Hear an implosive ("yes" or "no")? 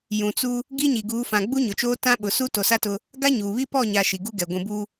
yes